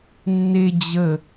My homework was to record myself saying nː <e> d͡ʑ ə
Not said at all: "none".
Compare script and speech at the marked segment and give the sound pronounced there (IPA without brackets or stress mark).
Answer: e